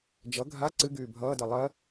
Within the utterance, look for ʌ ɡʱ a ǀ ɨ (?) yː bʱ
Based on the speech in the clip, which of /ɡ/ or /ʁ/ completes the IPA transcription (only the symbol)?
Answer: ɡ